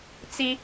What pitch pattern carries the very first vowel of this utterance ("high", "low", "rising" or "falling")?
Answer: high